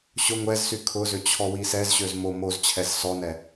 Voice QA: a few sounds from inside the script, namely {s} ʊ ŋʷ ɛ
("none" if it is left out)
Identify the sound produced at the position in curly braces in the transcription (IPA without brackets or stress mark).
ɕ